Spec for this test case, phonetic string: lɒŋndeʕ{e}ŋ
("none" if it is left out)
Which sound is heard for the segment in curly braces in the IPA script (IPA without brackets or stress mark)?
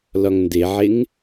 e